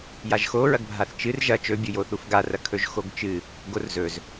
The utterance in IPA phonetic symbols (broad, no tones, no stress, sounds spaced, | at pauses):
j a ʒ x o ɹ ɐ ɡ bʱ a θ t͡ʃ ɨ r ʒ ɐ t͡ʃ ɵ bʲ u j o θ u f ɡ a r ɐ kʰ ɵ ʒ x o ɡ t͡ʃ ɨ | ɡ o r z ɵ z